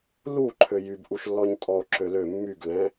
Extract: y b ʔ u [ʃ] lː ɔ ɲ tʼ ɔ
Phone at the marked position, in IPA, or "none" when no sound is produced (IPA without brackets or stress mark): ʃ